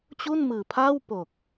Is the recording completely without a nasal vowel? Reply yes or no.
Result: yes